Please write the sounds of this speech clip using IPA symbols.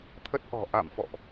t̪ʰə˦˥t̚ʔɔ̤˨˩ ʔa̰˧˨mfɔ̰˧˨ʔ

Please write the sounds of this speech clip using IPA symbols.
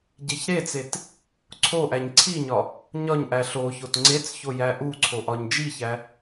ɟeçɾet͡set | ǀʰoʔæɲ ǀʰiɲɒ | ɲɒɲʔæ ɬoçot ŋ͡ǀet͡sço jæʔuǀʰo ʔɒɲd͡ʒiçæ

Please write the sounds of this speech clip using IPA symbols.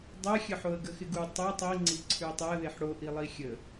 dˤɛxʲə ħoə̯ɡəxɪɡu tˤo tˤi ŋ͡ǀiǀʰʉə̯tˤɛə̯ðeħ ɽoʔilˠi xʲə

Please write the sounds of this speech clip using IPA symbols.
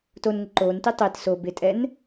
tonŋɪ ǃoːnti tˤet so bɪtʼɛn

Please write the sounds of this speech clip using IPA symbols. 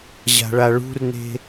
ʑa̤ɭaɭṳrne̤

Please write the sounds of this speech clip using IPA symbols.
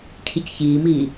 cʰicçiːmiː

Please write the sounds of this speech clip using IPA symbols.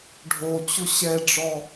ɖʱot͡ɕʊ ɕɛɖ͡ʐɔ

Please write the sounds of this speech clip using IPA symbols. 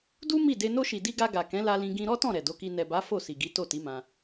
du˦ mi˦˨de˧ no˧ʃi˨ di˧ ɡa˧ ɡa˨kɛ̃˨˦la˧lĩ˧ ɡĩ˧ ɾɔ˦tɔ̃˦˨ ɾɛ˨do˨˦ki˧ nɛ˨ba˨˦ fo˦˨si˨ɡi˨˦ to˦˨ti˨˦mã˧

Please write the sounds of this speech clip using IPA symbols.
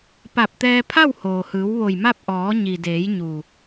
pa˧˩p̚t̪ɛː˧ pʰa˥˨whoː˩hɯː˩˧w ʋo˧˩jma˥˨p̚ ʔɔː˩˧ɲi˩deː˩˧j ɲu˧˩

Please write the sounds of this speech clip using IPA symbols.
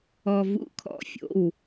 ɔ˧ vṵ˧˥kʰɔ̰˧˩fʲo̰˩˧˩w

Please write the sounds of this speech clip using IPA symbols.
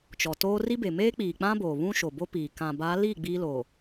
t͡ʃɔ˨toː˦ ri˦be˨ meː˦k͡piː˨k͡pã˦ boː˨βũ˦ʃo˨ bo˦piː˨ kã˨ba˨˦li˦˨ ɡ͡biː˦loː˨

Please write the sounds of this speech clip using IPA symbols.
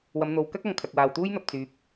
wɐ˨˧m n̪o˨˧w kɐ˥k̚ɐ˨ŋ kʰɐ˨k̚waː˨wt̪uː˥jn̪ɐ˨p̚ t͡syː˨˥p̚

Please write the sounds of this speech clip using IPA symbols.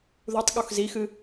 ðutˤ ɠoxzixɨ

